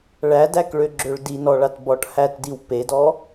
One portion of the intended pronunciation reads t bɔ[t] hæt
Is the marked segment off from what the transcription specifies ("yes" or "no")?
yes